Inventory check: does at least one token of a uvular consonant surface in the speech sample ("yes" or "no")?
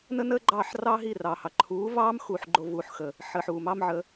no